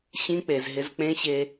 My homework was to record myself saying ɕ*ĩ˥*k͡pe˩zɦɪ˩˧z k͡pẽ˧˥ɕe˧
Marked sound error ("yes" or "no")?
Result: yes